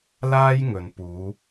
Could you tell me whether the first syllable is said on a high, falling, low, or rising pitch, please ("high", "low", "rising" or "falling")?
high